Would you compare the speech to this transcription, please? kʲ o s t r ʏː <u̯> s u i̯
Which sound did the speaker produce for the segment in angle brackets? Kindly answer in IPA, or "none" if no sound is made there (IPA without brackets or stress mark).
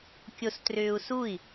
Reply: u̯